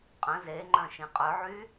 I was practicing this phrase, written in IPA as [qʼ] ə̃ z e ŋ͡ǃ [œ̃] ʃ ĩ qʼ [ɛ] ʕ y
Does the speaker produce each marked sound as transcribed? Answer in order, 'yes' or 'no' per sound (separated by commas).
yes, yes, no